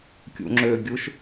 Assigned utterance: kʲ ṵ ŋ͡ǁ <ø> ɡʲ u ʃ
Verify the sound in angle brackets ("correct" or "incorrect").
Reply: correct